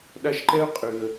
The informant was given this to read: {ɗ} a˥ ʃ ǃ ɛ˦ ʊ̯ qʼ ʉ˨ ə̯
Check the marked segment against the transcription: correct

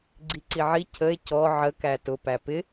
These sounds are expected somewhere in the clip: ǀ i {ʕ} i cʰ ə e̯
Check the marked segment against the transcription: correct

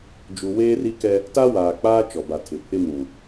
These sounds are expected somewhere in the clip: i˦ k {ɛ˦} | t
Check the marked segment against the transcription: correct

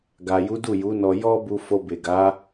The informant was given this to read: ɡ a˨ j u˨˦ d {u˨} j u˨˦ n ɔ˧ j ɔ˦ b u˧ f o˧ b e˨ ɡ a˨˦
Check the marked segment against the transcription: incorrect: u˦˨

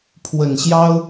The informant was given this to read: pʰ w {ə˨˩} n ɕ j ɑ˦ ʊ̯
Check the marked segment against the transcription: correct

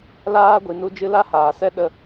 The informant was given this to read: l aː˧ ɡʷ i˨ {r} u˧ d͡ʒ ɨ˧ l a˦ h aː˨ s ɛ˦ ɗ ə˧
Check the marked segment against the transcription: incorrect: n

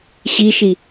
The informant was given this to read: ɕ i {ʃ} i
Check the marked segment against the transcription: correct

